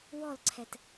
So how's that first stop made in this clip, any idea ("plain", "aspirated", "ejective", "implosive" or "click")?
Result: click